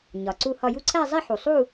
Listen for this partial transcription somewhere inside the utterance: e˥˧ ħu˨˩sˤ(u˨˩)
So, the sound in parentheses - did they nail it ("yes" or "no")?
no